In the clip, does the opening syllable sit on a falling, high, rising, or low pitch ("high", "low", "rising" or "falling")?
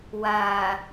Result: low